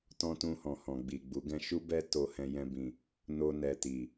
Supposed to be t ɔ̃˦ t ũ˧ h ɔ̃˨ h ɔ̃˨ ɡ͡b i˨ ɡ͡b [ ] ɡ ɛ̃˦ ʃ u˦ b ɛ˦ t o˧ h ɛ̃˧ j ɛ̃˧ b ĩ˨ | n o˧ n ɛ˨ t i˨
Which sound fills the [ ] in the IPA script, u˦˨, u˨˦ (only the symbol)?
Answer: u˨˦